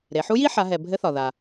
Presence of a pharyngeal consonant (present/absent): present